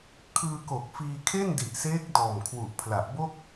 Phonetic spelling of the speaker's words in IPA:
kʰ ɯː˧ k o˨˩ k̚ f iː˧ kʰ e˥˩ n d i˨˩ ʔ s eː˦˥ k̚ d ɔː˨˩ m kʰ w u˨˩ ʔ pʰ l a˨˩ ʔ b o˥˩ k̚

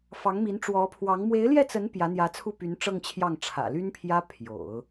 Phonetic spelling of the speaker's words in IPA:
f ɑ˧˥ ŋ m i˧˥ n ʈ͡ʂ w ɔ˧˥ pʰ w ɑ˧˥ ŋ m w e˧˥ ɪ̯ l j ɛ˥˩ t͡s ə˧˥ n p j ä˧˥ n̪ j ä˧˥ t͡sʰ u˥˩ p y˧˥ n ʈ͡ʂ ɤ˥˧ ŋ t͡ɕʰ j ɑ˥˩ ŋ ʈ͡ʂʰ ä̰˨˩ l y˥ n pʰ j ä˥ pʰ j o̰˨˩˦ ʊ̯

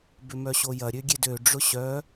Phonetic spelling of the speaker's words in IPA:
b ʏ m œ ɕ o j ɐ ɾʲ ø ɡʲ e d ø ɖ͡ʐ ʊ ɕ œ

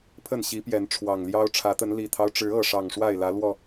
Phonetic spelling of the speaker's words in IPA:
pʰ ə˥˨ n ɕ i˨˦ p j ɛ˨˦ n ʈ͡ʂʰ w ɑ˨˩ ŋ l j ɑ˦ ʊ̯ ʈ͡ʂʰ ä˨˦ t̪ ə˨˦ n l i˨˩ t̪ʰ ɑ˦ ʊ̯ ʈ͡ʂ ɻ̩˨˦ ɤ˥˨ ʂ ɑ˨˩ ŋ ʂ w a˥˨ ɪ̯ l ä˨˦ l w ɔ˥˨

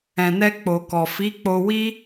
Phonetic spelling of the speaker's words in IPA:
ɛ̃˨ n ɛ˧ k͡p o˨ k ɔ˨ f i˨˦ k͡p o˧ w i˦

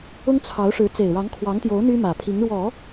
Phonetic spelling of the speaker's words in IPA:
ʊ˥ ŋ t͡sʰ ɑ˧˥ ʊ̯ ʂ ɻ̩˧˥ t͡s e˨˩ ɪ̯ ɻ ɑ˧˥ ŋ kʰ w ɑ˧˥ ŋ t̪ j o˧˥ ʊ̯ n̪ y˥ m ä˨˩ pʰ i˧˥ ŋ ɻ w ɔ˨˩˦

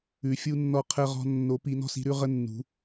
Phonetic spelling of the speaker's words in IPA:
ʉ˨˦ fʲ u˦ nː ɔ˦ qʰ ə˦ ʁ ɔ̤˦ nː o˨˦ p i˨˦ n ɔ̤˦ s i̤˨˦ ɾ ʉ˦ ʁ ə˦ nː ṳ˨˦

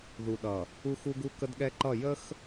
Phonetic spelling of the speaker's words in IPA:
ð u˨ ɗ ʌ˨ | u˦ x u˦ ɡ u˦ k ə˦ d ɠ ɛ˦ ǃ ʌ˦˨ j ə˦ x

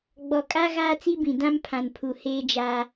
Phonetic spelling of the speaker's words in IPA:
ɡ͡b ɔ˨ kʼ a˦ ɣ aː˦ t͡s i˦ b ĩ˨ d ã˦ m pʰ ã˨ n pʰ u˨ h eː˦ d͡ʒ a˦

